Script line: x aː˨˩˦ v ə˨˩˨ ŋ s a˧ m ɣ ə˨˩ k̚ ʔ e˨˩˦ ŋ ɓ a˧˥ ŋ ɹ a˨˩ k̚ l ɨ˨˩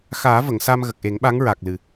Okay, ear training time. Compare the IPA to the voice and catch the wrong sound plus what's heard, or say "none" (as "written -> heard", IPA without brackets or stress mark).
none